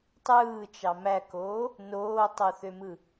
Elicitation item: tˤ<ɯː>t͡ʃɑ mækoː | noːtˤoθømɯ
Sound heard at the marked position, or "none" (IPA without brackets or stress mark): ɯː